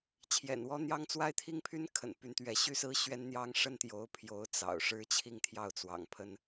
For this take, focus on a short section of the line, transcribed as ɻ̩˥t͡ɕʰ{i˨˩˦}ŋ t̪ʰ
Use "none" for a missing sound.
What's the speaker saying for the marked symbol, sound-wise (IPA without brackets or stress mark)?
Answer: i˥˧